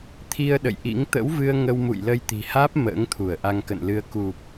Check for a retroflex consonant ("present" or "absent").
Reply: absent